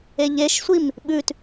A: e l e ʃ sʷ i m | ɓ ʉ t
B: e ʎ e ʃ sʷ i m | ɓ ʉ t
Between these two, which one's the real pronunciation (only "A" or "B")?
B